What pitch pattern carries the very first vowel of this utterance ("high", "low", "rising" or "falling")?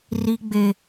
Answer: high